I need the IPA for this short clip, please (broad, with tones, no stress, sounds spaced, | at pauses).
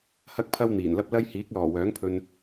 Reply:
h ɐ˥ k̚ pʰ ɐ˥ w n̪ iː˨˩ n l ɐ˥ p̚ l ɐ˥ j h iː˨˥ k̚ l ɔː˨˩ w œː˨˥ ŋ pʰ ɵ˧ n